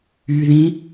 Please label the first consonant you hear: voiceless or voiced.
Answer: voiced